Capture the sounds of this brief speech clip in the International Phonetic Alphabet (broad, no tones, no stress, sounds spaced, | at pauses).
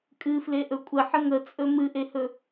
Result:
kʼ ɨ f l e ʔ ɵ kʷʼ ə ħ ə ŋ ə t͡sʼ ɵ m ɨ ʔ e h ɵ